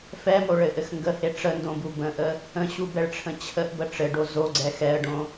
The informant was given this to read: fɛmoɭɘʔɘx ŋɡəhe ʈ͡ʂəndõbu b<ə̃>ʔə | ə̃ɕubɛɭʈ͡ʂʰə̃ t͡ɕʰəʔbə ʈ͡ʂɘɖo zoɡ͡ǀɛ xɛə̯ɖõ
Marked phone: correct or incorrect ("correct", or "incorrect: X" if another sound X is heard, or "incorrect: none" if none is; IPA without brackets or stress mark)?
correct